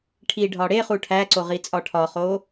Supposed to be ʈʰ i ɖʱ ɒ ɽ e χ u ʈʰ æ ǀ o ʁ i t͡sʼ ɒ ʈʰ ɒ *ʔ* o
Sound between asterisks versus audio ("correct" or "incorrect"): incorrect